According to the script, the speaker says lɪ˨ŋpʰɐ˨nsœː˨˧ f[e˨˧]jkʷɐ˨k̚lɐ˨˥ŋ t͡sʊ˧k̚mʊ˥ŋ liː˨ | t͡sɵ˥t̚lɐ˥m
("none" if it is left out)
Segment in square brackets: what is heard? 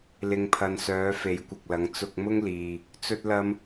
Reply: e˨˥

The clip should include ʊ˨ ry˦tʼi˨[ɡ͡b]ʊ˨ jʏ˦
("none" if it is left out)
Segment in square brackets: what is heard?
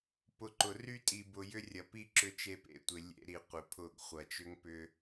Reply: b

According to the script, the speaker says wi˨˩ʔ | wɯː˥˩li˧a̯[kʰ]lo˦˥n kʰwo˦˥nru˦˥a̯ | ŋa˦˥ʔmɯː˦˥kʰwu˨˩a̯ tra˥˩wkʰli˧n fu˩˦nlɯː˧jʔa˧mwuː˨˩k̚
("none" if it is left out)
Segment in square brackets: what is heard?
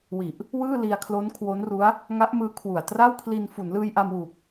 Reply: kʰ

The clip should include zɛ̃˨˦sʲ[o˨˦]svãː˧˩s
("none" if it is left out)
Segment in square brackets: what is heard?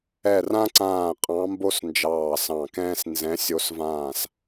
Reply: o˨˦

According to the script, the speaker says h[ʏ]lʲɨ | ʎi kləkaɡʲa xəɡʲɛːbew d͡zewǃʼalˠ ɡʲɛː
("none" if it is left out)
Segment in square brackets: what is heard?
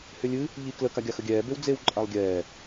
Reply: ʏ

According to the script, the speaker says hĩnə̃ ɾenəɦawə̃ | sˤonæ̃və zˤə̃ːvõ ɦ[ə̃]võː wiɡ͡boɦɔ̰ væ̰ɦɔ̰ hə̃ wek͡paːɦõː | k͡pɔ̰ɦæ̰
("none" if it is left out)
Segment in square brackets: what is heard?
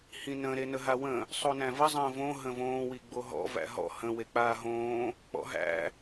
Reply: ə̃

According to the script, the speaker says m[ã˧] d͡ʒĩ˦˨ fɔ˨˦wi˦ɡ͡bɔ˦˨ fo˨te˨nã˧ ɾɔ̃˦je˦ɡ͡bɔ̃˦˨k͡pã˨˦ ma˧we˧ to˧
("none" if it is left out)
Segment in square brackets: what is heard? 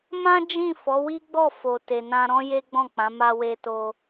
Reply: ã˦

